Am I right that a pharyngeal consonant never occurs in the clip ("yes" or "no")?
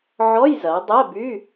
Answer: no